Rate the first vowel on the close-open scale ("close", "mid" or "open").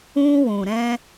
close